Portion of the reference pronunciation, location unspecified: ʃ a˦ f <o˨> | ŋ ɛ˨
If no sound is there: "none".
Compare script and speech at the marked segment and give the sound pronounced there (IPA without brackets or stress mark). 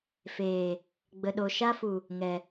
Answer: u˨